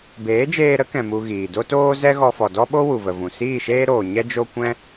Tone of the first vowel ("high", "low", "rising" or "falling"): rising